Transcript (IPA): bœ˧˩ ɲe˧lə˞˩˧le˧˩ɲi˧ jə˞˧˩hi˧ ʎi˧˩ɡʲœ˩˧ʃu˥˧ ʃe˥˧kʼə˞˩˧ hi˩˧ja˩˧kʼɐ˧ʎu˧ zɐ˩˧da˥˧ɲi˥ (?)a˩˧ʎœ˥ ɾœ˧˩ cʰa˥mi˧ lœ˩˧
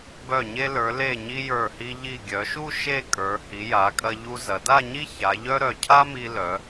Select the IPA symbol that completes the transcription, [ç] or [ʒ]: ç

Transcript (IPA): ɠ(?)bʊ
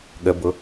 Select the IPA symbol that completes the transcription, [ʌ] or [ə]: ə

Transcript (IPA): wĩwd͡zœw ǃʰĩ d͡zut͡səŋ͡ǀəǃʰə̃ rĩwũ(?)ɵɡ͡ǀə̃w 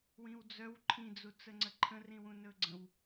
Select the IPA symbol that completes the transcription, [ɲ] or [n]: n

